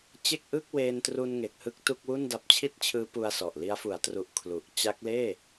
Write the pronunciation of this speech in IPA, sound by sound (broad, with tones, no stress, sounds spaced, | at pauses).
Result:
t͡ɕ e˥˩ k̚ ʔ ɯ˥˩ k̚ w eː˧ n t r u˧ n ŋ e˨˩ k̚ h ɯ˦˥ k̚ t u˥˩ k̚ w u˥˩ n d a˦˥ p̚ t͡ɕʰ i˥˩ t̚ t͡ɕʰ ɯː˦˥ p u˧ a̯ s ɔ˨˩ ʔ l i˦˥ a̯ f u˩˦ a̯ t r u˨˩ ʔ kʰ l u˨˩ ʔ t͡ɕ a˦˥ k̚ l eː˥˩